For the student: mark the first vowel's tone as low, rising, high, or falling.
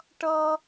high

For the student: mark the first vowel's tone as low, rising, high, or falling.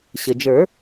low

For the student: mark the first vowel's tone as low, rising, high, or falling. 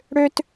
high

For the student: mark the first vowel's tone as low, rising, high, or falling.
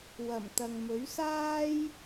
low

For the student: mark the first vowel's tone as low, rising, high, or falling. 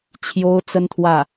high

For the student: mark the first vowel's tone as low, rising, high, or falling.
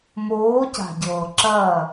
rising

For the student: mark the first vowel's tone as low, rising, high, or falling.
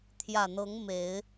low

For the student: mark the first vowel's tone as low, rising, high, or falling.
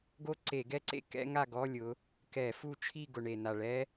falling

